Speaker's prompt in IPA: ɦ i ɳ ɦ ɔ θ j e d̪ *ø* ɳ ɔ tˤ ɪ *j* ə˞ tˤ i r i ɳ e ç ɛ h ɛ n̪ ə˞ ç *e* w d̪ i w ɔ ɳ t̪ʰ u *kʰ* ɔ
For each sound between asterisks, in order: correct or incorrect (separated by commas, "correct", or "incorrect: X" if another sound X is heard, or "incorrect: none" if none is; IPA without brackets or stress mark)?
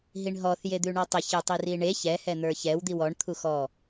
incorrect: ʉ, incorrect: ç, incorrect: ɛ, incorrect: x